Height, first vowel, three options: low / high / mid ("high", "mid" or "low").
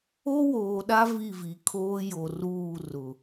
mid